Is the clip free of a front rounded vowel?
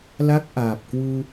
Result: yes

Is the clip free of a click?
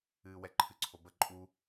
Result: no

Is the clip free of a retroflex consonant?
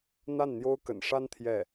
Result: no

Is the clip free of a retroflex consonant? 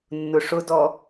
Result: no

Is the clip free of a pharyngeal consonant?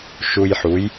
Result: no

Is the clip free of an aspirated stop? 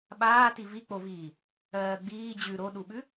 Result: yes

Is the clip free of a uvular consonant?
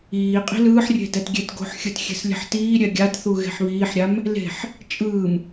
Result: no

